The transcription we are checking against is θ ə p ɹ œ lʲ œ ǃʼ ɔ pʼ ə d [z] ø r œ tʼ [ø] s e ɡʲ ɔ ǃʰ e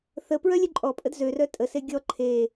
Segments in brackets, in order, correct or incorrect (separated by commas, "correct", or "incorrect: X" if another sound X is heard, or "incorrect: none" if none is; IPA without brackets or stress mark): correct, incorrect: ə